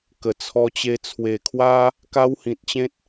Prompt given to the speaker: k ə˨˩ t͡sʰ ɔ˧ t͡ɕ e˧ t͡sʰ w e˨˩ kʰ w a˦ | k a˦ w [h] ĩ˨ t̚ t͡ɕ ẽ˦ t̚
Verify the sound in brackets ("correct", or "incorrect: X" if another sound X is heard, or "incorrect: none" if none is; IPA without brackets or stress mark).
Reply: correct